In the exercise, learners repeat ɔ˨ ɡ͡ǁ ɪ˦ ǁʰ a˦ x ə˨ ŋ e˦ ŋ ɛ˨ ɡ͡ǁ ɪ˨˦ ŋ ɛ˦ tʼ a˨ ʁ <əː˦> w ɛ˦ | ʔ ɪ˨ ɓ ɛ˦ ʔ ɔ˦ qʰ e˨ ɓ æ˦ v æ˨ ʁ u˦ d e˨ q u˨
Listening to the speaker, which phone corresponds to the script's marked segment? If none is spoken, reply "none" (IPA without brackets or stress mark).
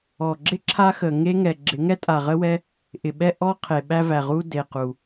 ə˦